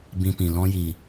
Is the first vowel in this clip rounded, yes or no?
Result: no